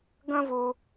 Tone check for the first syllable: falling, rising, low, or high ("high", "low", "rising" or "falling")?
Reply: high